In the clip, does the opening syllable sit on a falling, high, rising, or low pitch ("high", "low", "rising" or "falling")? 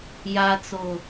low